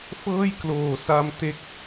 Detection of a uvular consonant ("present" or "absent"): absent